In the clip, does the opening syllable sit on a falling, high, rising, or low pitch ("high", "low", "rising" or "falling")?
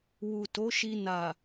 low